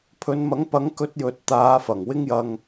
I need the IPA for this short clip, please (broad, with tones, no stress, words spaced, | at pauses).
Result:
pʰɵ˨˧nmɐ˨˥ŋpɐ˨˥ŋ kɵ˧t̚jɵ˨t̚ t̪aː˨˧fɐ˨˩ŋ wɪ˧ŋjɐ˨ŋ